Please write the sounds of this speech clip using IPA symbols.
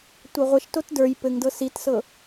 tʷɤʁʷɘʃ totdə˞j pɘŋdɤ sitsɤ

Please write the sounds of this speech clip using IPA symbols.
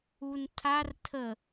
untʰar tʰə

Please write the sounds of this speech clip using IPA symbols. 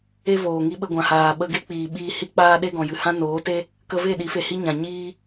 e˧ voː˨ŋi˧ ɓə˧ ɡʷã˨haː˨ɓə˧ɡe˦ k͡piː˨ɓiː˧ hi˧k͡paː˧ɗe˧ ɡɔ̃˨jɨ˨hã˦ noː˨˦te˦ | kə˧ve˦˨ɗi˨˦fe˨ hi˦ɲã˨ɲiː˦

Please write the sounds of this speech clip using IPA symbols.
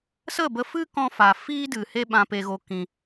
sə˦˨bə˧fɨ˦kɔ̃˧ fa˨fiː˦dɨ˨ he˦ɓã˧pe˧ɣo˧ kĩ˧

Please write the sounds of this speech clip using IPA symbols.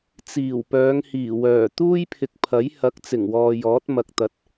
t͡siː˨˩wpœː˨˧ŋhiː˨˩ wœː˨˩ t̪uː˥jpʰɪ˨k̚pʰɐ˨˥j hɐ˨˥k̚ t͡sɪ˨˩ŋwɔː˨jɔː˨˥t̚ mɐ˧k̚t̪ɐ˧t̚

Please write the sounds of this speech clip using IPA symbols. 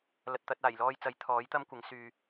lɐ˨t̚t̪ɐ˧t̚ aː˨˩jlɔː˧jt͡sɐ˨˥j t̪ʰɔː˨˥jt̪ɐ˥mkʷɪ˨˥ŋ syː˧

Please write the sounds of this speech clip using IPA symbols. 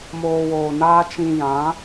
moː˧woː˨naː˦ t͡ʃĩ˧ jã˨˦

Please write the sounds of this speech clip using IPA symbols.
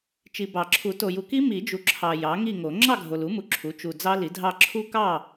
t͡ʃi˨bɑ˨˩˦ǁʰu˨˩˦ to˨ju˨ki˦˥ mi˨˩˦d͡ʒu˨ ǁʰɑ˨ jɑ˩˥ŋi˥˨ŋo˨˩˦ ŋ͡ǁɑ˥˨ɡʱo˨lu˩˥ mu˨ǁʰu˩˥ t͡ʃu˨ d͡zɑ˦˥li˩˥dʱɑ˥˨ ǁʰu˦˥kɑ˥˨

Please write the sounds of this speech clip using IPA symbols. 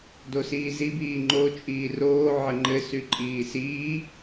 dosiːzib iːŋ͡ǃo t͡ʃʼiːroː ʕɘŋ͡ǃɘ syǃʼiːsiː

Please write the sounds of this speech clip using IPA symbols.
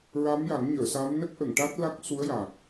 ɹa˧˥mja˨˩˦ŋ ɲəː˨˩˨sa˧˥m nə˦˥k̚ʔə˨˩˨ŋʈa˦˥t̚ la˦˥k̚su˧˥ə̯ja˨˩k̚

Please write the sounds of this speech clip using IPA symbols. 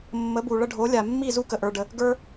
mːə˨˦bu˨ɭə˧ ɖʱo˨˦lʲa˨mːi˦˨ zu˦kə˨ʔə˞˧ɖə˧ | ɡə˞˦

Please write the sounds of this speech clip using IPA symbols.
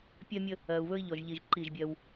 pʲɜ˦mʲə˦ | ɜ˨u̯βɵ˦i̯ʎɔ˨ʒ ʎi˨ʒ ǃi˦˨ʒbʲɜ˦w

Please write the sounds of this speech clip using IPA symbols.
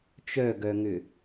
t͡ʃœɡœŋʏ

